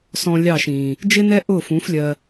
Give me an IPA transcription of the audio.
s ɔ̃˧ lʲ ɑ˦˨ ʃ ĩː˨ | d͡ʒ ɪ˦ n ɛ˦ ʔ ʊː˦˨ f ũ˨˦ f lʲ ɜ˧

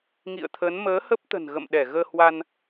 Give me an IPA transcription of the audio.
ŋ ḭ˧˨ ə̯ t̪ʰ ə˨˦ n m əː˨˦ h ə˦˥ p̚ t̪ ə̤˨˩ n ɣ ə̰˧˨ m ɗ ɛ˧˩ ɣ əː˧ h w a˧ n

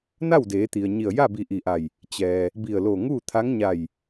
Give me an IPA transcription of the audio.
n a˥˨ w d eː˩˧ t̪ i˩ ə̯ ɲ i˧˩ ə̯ j a˥˨ b i˧˩ ʔ i˧˩ ʔ a˧˩ j | t͡ɕ ɛː˩ | b i˧˩ ə̯ l o˧˩ ŋ uː˥˨ t̪ʰ a˧˥ ŋ ɲ a˧˩ j

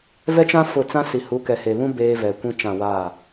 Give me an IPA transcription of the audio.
v ɛ˦ t͡ʃ ã˦ f ʊ˦˨ t͡s ã˦ s i˨ h u˨˦ k ɛ˨ h e˨ β ũ˦ b eː˦ v ɛ˨ kʷ ĩ˦ t͡ʃ ã˦˨ w aː˦˨

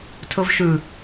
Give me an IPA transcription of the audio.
tʰ ɵ v ʃ ʉ

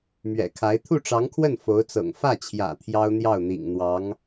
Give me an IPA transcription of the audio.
m ɥ ɛ̰˨˩ kʰ a˧˥ ɪ̯ t̪ʰ u˥˩ ʈ͡ʂ ɑ˧˥ ŋ kʰ w ə˥˩ n f o˧˥ ʊ̯ t͡s ɤ̰˨˩ ŋ f ä˥˩ t͡ɕʰ j ä̰˨˩ t̪ʰ j ɑ˥ ʊ̯ n̪ j ɑ˥˩ ʊ̯ n̪ ḭ˨˩ ŋ n̪ w ɑ˧˥ ŋ

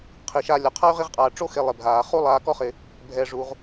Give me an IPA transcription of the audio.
qʰ i˩ ʃ a˨ lʲ ɔ˩ qʰ a˥ y̯ ʁ i˦ ʁ qʼ aː˨ ʈ͡ʂ o˦ x e˨ lˠ e˩ bʱ aː˩ χ u˦ lˠ aː˨ k ɔ˦ χ ɪ˨ | bʱ ɛ˩ ʐ u˩ ʁ

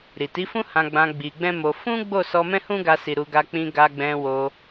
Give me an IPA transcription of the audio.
ɾ i˨ t i˨˦ f ũ˦ h ã˧ ɡ͡b ã˧ ɡ͡b i˧ ɡ͡b ɛ̃˦ m o˧ f ũ˦ ɡ͡b o˦˨ s ɔ˧ m ɛ̃˦ h ũ˦ ɡ a˧ s i˨ ɾ u˧ ɡ a˧ k͡p ĩ˧ ɡ a˧ ɡ͡b ɛ̃˧ w o˧

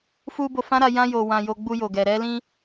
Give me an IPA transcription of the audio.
f u˧ b o˧ f ã˦ ɾ a˧ j ã˧ j o˨ w ã˨ j o˧ ɡ͡b u˧ j o˨ ɡ ɛ˨ ɾ ɛ˧ l ĩ˧

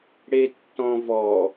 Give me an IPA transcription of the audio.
ɽ e tː ɔ̃ v ɔ

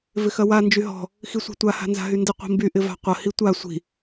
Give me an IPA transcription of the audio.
v ɪ x ɐ w a n d͡ʒ y ɦ ɔ̤ | x i sʷ a̤ tʷ a h a̤ n z a̤ ɦ y n d ɪ qʷ i̤ m b y ʔ ɪ v a̤ qʷ ɐ h i tʷ a sʷ i̤

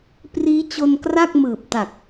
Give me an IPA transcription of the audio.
p r iː˦˥ t͡ɕ o˧ n k r a˥˩ k̚ m ɯː˨˩ p̚ t a˨˩ k̚

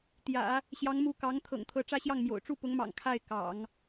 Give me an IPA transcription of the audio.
t̪ j ä̰˨˩˦ | ɕ j ɑ˧˥ ŋ m u˧˥ k ɑ˧˥ ŋ t̪ʰ ɤ̰˨˩ ŋ t̪ʰ ɤ˧˥ ʈ͡ʂ ä˥˧ ɕ j ɑ˥˩ ŋ m j o̰˨˩ ʊ̯ ʈ͡ʂ u˥˩ p ʊ˧˥ ŋ m ɑ̰˨˩ ŋ kʰ a˥˩ ɪ̯ k ɑ̰˨˩˦ ŋ

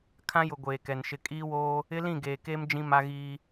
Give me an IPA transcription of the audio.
kʰ ã˦ j ʊ˨ ɡʷ eː˨ k ɛ˨ n ʃ ɪ˦ kʼ iː˦ w oː˦ | ɪ˦ l ĩ˦˨ ɡ eː˨ k eː˦ m d͡ʒ ĩ˦ m a˦ ɣ iː˦

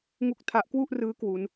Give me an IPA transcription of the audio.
ŋ u˥˩ k̚ tʰ a˦˥ ʔ k w u˥˩ ʔ r ɯː˦˥ k w u˦˥ n

